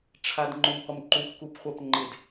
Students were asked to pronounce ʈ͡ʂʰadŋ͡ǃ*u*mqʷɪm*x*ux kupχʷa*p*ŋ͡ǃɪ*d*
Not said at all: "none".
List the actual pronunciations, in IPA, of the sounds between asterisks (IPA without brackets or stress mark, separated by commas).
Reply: o, ǃ, p, d